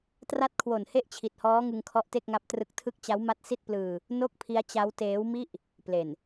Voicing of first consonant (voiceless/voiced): voiceless